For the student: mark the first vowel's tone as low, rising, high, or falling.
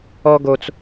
high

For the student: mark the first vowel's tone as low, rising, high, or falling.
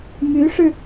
rising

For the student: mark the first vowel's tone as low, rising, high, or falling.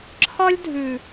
high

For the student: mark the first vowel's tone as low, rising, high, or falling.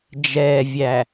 low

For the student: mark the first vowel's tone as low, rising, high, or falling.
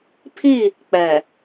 falling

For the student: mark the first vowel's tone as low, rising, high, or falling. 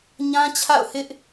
high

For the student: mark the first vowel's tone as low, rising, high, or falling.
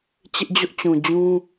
high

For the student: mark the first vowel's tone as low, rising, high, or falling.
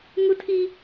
high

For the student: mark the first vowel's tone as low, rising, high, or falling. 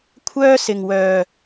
high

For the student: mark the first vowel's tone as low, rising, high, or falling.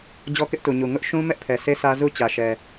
high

